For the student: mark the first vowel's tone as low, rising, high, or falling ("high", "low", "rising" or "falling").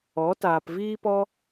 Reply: rising